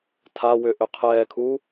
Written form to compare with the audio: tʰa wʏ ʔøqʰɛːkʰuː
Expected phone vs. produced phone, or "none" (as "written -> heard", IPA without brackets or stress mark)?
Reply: none